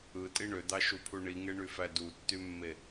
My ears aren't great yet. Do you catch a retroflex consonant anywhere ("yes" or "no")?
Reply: yes